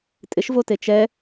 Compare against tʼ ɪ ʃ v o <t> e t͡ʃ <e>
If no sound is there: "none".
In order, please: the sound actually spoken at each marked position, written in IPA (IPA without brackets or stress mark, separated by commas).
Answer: t, ɛ